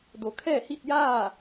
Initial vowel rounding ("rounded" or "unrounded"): rounded